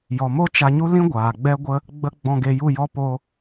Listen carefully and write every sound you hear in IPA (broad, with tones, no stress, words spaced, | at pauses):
jɔ˨mo˦ t͡ʃa˧ɲu˦ lĩ˦ ɡʷaː˨ɡ͡bɛ˦ɡʷə˦ | ɡ͡bə˧ ɡ͡bɔ̃˧ɡe˧ju˦˨jɔ˦ po˧